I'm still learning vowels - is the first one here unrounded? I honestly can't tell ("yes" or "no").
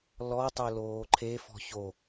no